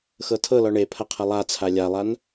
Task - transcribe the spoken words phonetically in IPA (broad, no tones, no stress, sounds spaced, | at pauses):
x ɤ tʰ ɤ l ɔ ɳ e pʰ ɐ qʰ ɐ lˠ a t͡sʰ a lʲ a lˠ a n